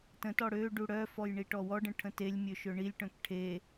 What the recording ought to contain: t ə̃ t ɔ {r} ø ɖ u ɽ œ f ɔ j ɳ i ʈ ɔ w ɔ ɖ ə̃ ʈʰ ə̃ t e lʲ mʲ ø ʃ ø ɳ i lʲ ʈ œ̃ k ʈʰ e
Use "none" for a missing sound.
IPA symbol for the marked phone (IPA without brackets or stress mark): ɽ